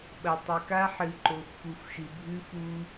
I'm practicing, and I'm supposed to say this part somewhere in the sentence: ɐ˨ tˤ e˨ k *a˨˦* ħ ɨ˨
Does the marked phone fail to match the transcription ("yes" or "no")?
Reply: yes